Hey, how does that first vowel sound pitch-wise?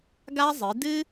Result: high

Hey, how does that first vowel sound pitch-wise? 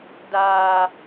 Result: low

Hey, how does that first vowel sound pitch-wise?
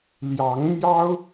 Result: rising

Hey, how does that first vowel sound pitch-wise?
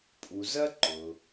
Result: low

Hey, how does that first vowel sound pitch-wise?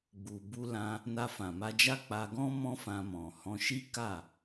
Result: low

